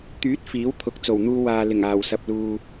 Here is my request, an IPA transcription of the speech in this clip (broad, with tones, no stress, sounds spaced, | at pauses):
t̪ yː˨˥ t̚ f iː˨˥ w t̪ʰ ʊ˨˥ k̚ t͡s o˨˩ w n̪ uː˧ w aː˨ l ɪ˨˩ ŋ aː˨˩ w s ɐ˨ p̚ l uː˨